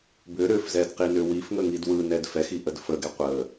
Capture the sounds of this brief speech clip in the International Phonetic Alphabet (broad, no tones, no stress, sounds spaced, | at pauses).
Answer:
b ʏ ɾ ʏ f z ɛ d q i n ʏ w i f ŋ ə ŋ i d w ɯ n ɛ d f ɛ x i ʔ ə d f ə ɡ ɛ qʷ ə